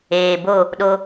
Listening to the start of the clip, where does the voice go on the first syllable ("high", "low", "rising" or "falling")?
low